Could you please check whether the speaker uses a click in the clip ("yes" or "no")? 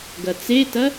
no